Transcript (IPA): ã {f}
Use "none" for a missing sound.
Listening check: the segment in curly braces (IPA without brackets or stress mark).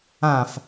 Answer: f